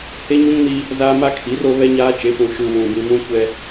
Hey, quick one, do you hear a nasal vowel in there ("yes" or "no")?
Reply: yes